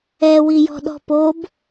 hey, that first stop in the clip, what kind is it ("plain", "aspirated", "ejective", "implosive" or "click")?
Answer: implosive